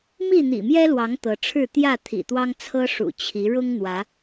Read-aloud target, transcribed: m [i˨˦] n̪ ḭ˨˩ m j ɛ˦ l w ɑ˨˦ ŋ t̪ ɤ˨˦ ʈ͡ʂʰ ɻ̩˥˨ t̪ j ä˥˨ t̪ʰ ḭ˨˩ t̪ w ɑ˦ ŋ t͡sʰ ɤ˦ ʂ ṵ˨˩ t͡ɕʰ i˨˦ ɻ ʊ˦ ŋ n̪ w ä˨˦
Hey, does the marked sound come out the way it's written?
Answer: no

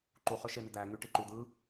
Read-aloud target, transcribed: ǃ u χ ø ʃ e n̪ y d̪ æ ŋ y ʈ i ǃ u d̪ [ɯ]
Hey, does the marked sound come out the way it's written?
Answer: yes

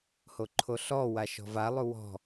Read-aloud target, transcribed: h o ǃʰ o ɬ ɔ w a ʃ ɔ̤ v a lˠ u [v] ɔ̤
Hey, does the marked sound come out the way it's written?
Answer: no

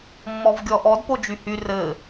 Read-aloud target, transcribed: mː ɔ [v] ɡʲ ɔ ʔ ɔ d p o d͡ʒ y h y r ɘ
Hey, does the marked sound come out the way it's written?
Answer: yes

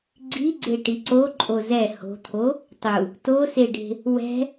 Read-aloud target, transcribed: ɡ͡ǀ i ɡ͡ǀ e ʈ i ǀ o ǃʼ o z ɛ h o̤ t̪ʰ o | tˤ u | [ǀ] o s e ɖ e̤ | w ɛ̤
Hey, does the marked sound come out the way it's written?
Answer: no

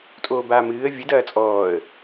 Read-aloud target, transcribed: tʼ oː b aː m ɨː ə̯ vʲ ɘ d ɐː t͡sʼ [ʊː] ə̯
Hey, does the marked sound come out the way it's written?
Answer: no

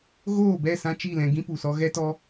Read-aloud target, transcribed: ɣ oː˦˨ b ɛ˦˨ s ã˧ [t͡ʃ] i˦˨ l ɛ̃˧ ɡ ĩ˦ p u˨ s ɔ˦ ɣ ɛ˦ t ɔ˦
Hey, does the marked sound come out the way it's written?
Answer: yes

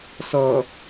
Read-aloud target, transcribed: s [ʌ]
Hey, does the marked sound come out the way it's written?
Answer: yes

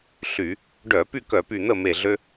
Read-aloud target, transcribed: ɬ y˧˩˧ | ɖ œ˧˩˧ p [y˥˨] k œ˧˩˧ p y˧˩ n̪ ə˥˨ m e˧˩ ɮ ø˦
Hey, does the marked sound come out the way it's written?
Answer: yes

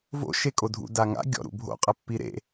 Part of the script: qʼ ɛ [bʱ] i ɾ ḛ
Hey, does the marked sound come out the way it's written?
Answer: no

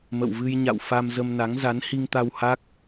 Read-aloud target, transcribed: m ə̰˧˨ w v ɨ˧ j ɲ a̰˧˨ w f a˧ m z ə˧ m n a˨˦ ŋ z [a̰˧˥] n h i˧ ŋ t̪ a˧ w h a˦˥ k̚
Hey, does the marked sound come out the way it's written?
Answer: no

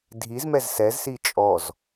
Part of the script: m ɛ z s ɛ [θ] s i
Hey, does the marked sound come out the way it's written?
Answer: no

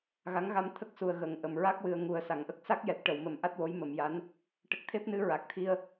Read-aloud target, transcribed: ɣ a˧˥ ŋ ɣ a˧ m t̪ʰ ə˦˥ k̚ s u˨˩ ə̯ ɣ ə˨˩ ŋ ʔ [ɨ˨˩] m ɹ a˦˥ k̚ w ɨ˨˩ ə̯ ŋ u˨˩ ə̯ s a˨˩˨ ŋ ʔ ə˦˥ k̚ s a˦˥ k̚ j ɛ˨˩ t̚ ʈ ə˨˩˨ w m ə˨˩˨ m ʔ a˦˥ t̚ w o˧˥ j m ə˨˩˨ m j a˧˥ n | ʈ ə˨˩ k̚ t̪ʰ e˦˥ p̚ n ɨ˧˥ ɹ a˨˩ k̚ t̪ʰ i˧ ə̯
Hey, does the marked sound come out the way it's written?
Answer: no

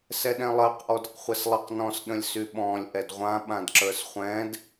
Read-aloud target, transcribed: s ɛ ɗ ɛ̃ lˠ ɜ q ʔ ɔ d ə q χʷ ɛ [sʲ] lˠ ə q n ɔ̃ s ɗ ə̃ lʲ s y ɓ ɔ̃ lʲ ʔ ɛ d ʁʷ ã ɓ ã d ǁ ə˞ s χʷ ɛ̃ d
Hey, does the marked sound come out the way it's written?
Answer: no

